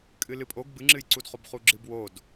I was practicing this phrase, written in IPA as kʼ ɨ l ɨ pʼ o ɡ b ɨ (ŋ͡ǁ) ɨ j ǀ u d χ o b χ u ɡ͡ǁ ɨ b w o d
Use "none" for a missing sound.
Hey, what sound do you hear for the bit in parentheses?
ŋ͡ǁ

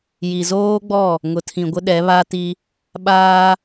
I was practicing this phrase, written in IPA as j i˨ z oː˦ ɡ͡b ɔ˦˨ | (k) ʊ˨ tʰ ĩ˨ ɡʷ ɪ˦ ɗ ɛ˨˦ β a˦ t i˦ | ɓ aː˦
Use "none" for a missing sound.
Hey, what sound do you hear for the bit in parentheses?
ŋ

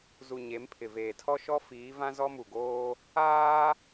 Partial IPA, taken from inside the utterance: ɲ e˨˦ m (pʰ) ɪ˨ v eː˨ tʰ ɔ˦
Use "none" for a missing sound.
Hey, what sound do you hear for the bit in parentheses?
pʰ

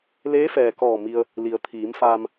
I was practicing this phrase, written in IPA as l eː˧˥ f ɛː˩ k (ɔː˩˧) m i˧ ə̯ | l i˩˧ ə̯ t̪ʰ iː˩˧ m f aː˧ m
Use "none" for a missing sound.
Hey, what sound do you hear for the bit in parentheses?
ɔː˧˩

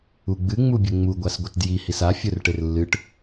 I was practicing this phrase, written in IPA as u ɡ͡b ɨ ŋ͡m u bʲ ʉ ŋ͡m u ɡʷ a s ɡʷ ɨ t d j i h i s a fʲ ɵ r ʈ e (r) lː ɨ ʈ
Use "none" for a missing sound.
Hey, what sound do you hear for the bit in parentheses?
r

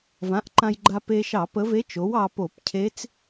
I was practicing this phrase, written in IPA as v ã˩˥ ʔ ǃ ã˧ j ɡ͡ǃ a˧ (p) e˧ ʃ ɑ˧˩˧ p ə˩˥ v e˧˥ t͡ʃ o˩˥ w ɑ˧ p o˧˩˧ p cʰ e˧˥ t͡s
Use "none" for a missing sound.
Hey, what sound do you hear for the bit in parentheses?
p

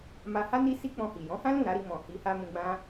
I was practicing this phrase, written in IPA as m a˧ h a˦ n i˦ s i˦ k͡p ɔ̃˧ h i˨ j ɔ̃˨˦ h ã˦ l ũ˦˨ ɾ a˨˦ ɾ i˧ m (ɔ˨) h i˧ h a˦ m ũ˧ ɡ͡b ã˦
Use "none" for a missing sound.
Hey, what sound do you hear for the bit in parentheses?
ɔ̃˨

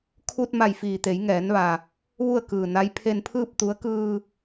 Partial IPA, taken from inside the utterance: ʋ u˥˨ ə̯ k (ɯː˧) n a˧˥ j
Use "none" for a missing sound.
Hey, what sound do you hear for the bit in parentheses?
ɯː˩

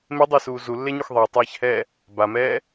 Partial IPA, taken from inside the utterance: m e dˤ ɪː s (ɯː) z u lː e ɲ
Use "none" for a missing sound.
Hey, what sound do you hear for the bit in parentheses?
uː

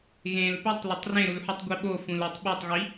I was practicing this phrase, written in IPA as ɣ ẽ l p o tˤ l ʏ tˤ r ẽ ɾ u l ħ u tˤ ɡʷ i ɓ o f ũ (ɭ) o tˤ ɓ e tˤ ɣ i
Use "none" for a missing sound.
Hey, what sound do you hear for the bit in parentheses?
l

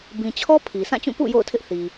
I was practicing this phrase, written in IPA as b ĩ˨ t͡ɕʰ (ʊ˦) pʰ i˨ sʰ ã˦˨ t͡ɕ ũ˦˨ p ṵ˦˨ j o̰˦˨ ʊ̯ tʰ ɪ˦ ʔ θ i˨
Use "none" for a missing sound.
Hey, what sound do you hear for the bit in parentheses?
ɔ˦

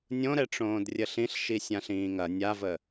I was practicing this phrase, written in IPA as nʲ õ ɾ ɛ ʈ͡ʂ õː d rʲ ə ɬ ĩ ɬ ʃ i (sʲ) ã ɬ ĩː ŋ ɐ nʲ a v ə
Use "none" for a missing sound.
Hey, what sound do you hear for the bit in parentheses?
sʲ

